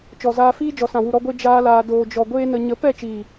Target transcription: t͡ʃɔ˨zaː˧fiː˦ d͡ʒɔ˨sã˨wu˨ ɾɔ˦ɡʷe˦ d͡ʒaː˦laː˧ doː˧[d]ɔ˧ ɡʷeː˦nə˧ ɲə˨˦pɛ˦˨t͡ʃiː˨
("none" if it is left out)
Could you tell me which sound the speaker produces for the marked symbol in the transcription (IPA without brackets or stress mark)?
d͡ʒ